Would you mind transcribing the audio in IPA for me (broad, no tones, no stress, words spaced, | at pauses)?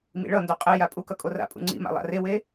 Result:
mḭɭʌndo qʼeja pʼukʌ kʼora̰pʼṵ ŋ͡ǀḭ ma̰lˠa̰rewe